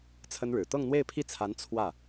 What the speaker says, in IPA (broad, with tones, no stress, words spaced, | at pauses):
t͡sʰə˥nɻɻ̩˨˩ t̪ɤ˥˧ŋn̪we˥˧ɪ̯pʰi˥˩t͡sʰa˧˥n t͡sʰwä˥˩